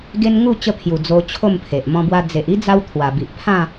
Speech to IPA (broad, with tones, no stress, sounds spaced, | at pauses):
ɡ e˧ n ŋ u˥˧ t͡ɕ ə˧ pʰ j u˨˩ d͡z o˧ t͡ɕʰ o˥˧ m pʰ e˨ ʔ m ɔ̃˧ b w a˧ d͡z e˨ ʔ i˦ d͡z a˧ w t̪ʰ w a˨˩ b i˨ ʔ pʰ ã˥˧